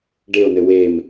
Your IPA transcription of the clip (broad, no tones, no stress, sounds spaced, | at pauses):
ɖ e o̯ n ɘ w e m